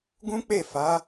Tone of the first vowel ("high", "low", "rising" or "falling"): high